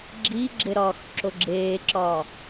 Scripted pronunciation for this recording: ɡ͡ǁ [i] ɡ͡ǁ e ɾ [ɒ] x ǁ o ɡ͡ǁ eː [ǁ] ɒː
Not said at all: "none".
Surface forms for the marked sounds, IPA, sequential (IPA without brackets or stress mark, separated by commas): iː, ɒː, ǁ